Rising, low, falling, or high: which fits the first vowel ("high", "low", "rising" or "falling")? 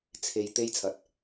low